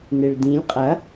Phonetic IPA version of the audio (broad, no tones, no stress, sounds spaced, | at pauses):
n e ɭ d ĩ lʲ qʼ ɐ